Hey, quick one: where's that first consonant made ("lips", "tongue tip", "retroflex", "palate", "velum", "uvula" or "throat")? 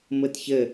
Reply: lips